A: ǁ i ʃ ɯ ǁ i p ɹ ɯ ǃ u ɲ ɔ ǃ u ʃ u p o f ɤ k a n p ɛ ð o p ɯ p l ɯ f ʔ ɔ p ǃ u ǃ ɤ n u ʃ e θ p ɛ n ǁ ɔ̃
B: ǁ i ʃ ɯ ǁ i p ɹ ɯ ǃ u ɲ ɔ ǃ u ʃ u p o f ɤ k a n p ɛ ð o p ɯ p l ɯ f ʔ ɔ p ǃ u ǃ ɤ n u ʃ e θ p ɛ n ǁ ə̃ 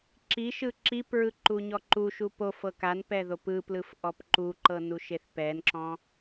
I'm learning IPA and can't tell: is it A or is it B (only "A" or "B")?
A